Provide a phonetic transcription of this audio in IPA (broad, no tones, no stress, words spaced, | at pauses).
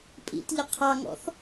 pʼḭtʎɪ qʰɑŋɔ̰θ